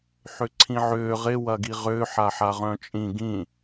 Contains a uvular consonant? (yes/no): yes